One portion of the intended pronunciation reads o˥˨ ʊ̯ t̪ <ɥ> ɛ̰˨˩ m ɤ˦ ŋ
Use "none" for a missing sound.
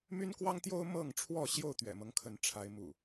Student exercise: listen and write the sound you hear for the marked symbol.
ɥ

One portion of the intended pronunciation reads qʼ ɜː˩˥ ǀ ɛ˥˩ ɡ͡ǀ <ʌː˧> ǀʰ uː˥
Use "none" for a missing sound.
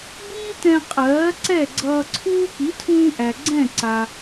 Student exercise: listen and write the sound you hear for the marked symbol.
ʌː˧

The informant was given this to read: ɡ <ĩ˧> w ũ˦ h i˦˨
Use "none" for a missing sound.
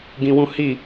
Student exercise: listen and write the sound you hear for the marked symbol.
ĩ˧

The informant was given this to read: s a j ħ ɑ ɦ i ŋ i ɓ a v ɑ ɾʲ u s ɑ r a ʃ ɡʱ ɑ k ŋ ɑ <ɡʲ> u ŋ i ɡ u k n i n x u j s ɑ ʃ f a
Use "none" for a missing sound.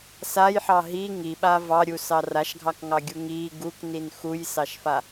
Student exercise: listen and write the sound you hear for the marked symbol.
ɡʲ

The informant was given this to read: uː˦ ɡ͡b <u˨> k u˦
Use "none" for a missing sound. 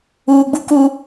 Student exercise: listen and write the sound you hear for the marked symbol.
u˦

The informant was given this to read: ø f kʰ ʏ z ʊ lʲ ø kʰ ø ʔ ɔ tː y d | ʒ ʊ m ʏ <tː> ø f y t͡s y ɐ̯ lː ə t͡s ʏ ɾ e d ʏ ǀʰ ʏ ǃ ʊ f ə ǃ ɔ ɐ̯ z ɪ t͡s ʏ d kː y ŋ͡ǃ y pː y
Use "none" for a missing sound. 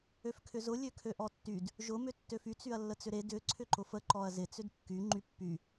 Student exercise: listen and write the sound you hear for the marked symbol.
tː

